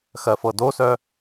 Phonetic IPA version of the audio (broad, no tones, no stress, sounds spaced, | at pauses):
x ɜ f ɤ d o s œ